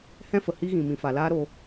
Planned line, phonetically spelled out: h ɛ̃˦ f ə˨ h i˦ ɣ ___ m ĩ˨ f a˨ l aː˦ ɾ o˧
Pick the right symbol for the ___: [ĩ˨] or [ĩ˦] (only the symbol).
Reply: ĩ˨